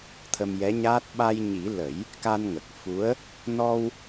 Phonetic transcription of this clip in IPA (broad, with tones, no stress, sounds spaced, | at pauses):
t̪ʰ ə˧ m j ɛ˧˥ ɲ aː˦˥ t̚ ɓ a˧ j ɲ i˨˩˦ l ə˨˩˦ j | k a˧ n ŋ ə˨˩ k̚ f u˧˥ ə̯ | n ɔ˧ w